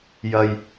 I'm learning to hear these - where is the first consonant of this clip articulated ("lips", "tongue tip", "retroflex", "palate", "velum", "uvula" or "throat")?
palate